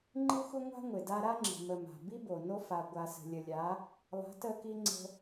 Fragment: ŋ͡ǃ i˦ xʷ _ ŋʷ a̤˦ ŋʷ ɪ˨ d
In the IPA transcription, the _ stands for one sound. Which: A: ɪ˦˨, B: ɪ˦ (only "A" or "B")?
B